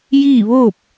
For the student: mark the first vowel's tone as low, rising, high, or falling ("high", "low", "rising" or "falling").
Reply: falling